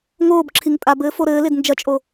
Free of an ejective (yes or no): no